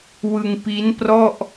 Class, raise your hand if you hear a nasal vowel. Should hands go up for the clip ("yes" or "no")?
no